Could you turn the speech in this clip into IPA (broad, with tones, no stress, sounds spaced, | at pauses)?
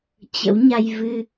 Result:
t͡ɕ ə̰˧˥ w ɲ a˧ j v ɨ˧